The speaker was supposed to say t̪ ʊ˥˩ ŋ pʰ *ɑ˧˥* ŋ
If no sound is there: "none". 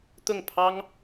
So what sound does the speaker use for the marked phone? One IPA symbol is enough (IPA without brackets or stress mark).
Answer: ɑ˥